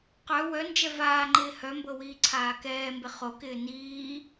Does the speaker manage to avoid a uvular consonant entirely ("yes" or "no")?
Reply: no